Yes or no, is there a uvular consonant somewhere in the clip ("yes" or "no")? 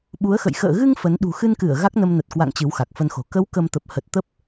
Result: no